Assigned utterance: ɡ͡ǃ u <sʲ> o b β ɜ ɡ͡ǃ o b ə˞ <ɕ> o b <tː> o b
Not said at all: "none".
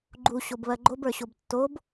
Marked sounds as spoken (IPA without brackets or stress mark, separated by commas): ɕ, ɕ, tː